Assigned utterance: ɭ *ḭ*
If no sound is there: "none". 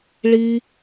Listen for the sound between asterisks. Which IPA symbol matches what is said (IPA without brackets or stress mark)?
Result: i